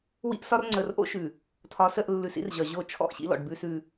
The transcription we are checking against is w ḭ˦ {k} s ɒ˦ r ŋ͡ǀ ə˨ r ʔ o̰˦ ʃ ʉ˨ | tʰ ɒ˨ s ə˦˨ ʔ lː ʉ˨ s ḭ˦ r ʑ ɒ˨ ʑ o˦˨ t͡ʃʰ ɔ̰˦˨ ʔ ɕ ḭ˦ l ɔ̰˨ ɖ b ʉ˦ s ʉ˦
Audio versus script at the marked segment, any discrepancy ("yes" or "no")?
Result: yes